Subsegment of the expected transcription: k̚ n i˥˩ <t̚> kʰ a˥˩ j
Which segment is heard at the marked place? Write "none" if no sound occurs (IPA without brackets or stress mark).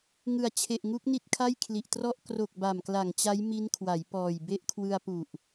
t̚